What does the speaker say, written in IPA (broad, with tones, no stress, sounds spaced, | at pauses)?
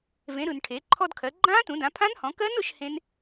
v ẽ˩˧ ɾ ɯ˩ n ʈʰ e˩˧ ǃʰ ɔ˧ d kʰ ɜ˩˧ ɡ͡ǃ ãː˦˥ t ũ˩˧ d ã˩˧ pʰ ã˦˥ n h ɔ̃˩˧ k ɜ˦˥ n ʊ˩˧ ʃ h ẽ˦˥ n